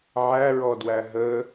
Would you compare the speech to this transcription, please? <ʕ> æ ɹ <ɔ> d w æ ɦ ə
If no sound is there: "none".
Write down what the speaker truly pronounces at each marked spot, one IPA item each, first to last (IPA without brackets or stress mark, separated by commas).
ʕ, ɔ